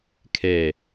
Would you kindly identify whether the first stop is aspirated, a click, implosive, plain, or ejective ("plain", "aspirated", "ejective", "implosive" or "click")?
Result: aspirated